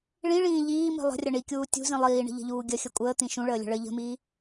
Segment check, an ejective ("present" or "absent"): present